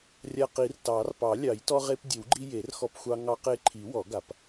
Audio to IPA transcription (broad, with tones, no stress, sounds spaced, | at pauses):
rʲ a˧ q i˨˩˦ r t ɑ˨˩˦ r p ɑ˨˩˦ lʲ ɑ˨˩˦ j t ɔ˧ ʁ e˧ p dʲ ə˨˩˦ w ɡ͡ǃ i˧ j e˨˩˦ r x ɔ˧ p xʷ ɑ˧ ŋ ɑ˧ q e˧ ǃʰ i˨˩˦ w ɔ˨˩˦ ɡ a˨˩˦ p